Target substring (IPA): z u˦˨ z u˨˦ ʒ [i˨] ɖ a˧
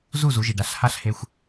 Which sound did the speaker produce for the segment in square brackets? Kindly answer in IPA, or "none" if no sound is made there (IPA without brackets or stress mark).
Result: i˨